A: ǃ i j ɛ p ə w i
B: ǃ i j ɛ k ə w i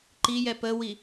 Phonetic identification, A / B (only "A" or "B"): A